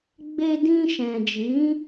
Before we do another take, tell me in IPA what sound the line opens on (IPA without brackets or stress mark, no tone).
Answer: ɡ͡b